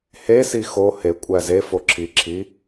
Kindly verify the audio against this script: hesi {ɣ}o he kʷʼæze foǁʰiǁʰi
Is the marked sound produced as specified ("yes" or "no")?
no